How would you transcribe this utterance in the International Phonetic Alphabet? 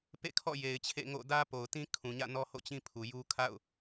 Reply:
pḛ˦˨kʰɔ̰˦˨ je˨ɪ̯t͡ɕʰḛ˦˨ŋo̰˦˨ dä˦po˨ʊ̯tĩ˦ kʰũ˨ɲä̰˦˨nɔ˦ho̰˦˨ t͡ɕĩ˦pʰu˨ju˦ kʰa̰˦˨ʊ̯

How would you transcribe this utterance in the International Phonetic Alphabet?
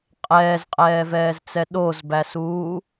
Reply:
qʼɛːzqʼɛːvɛːzt͡sɛ ɗozbæsuː

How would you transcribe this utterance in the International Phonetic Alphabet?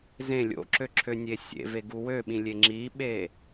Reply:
zẽ lʲo̰ǁøǁʰønʲe sʲḛveɡu wøɓĩlʲe ŋ͡ǁiɓe

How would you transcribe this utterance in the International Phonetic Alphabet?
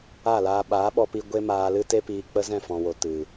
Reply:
a˦˨laː˧ ɓaː˨˦ɓɔ˧pi˧ ɡʷe˦maː˧lɨ˦ te˦piː˧k͡pə˦ zɛ̃˦˨fɔ̃˨wo˨ tɨ˨

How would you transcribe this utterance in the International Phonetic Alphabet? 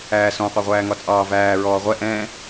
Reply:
æːsɔ̃ qʷæʁʷæːŋɒt͡sʼɑː væː ɹɔːʁʷɛ ʔɛ̃

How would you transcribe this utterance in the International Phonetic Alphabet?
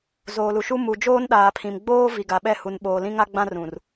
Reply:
zoː˨lu˨ʃu˦ mu˨d͡ʒoː˦nɗaː˨pʰĩ˨m ɡ͡boː˦ vi˨ɡa˨ɓɛ˦˨ hu˨n ɓoː˨lĩ˦ŋa˦ ɡ͡bã˦rũ˨r

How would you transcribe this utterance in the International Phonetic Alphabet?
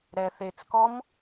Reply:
ɾɛ θet͡skɔm

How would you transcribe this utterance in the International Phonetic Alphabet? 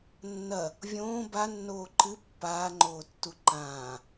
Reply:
nːɐ | vʲõː banːoː ǃɨ pːaːŋ͡ǃoːtːu ǃãː

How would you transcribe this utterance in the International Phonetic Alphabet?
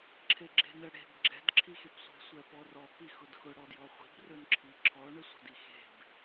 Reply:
ǁʰeɡ͡ǁe̤nə ɽe̤b ɡ͡ǁɛ̤dǁʰixepsʷe̤ sʷɛpɔrɔpi xʊdxʊɽɔdjɔ χʷi̤brɵnǁʰi ǁʰɔɳə sʷə̤dixe̤b

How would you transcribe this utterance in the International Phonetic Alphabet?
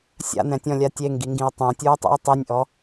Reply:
sʲa̰n̪ɛ̃tʲɔ̃lʲa tʲeŋɡiŋɡĩo̯ tˤõtʲuo̯tˤḭo̯ tˤinʲʔɔ

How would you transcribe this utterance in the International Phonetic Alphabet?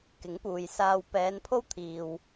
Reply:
kɪ˨˥ŋpuː˨jsaː˧w pɛː˨˧npʰo˥wt̪ʰiː˨w

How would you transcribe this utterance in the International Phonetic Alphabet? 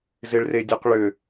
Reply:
zɪɭredʲoqɭʏ

